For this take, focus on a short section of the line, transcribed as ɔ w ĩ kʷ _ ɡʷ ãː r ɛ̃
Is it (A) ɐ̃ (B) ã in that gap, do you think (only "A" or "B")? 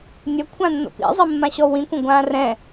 A